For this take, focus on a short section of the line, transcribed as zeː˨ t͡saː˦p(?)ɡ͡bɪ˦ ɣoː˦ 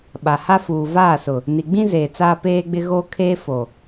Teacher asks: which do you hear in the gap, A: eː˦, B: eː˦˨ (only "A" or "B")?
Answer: A